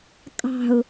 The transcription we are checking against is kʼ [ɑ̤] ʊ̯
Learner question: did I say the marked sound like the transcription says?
yes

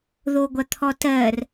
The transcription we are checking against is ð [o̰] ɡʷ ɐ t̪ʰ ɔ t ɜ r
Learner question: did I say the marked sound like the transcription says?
no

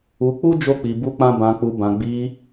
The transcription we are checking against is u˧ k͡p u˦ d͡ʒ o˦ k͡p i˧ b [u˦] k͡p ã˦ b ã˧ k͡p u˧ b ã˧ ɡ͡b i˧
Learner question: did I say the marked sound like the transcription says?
yes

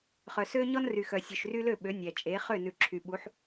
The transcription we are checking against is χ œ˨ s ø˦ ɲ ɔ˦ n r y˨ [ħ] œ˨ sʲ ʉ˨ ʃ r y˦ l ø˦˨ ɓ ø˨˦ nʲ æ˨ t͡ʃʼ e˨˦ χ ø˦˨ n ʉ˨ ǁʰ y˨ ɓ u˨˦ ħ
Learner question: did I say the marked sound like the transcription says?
no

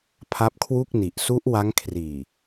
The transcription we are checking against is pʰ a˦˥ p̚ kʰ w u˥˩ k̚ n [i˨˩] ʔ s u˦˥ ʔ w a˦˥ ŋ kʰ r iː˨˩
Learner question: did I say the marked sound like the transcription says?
yes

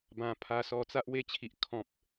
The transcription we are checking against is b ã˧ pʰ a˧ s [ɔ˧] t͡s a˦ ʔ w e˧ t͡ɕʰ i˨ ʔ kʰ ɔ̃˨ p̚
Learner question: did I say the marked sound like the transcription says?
yes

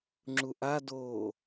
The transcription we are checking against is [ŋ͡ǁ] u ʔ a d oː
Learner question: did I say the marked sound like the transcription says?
yes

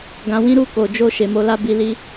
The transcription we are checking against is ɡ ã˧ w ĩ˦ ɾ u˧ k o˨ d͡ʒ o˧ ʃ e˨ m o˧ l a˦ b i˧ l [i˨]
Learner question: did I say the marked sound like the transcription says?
no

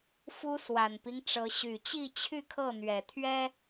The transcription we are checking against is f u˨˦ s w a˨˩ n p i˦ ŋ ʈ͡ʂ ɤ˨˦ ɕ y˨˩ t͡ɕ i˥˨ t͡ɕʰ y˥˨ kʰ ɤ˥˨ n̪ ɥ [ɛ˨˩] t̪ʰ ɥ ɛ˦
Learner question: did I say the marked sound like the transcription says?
yes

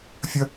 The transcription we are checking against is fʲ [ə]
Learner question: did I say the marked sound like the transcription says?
yes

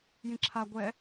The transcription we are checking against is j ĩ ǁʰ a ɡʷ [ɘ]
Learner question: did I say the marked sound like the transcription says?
no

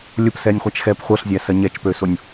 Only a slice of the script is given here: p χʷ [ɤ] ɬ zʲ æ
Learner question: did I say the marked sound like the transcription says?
yes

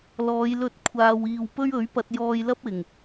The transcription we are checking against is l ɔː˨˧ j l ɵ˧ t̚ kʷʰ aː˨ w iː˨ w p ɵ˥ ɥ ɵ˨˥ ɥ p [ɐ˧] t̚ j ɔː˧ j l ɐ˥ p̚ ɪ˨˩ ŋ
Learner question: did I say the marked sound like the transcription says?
yes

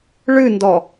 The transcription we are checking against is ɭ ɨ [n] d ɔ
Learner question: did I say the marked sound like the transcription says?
yes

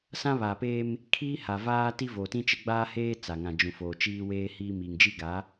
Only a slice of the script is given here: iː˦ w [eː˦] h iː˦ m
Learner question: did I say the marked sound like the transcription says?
yes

